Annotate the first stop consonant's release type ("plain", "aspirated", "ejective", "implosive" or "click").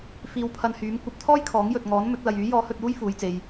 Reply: aspirated